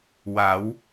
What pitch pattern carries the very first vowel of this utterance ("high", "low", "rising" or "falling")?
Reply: rising